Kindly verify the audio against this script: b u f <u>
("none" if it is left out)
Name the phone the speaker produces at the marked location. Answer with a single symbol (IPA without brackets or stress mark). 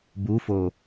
o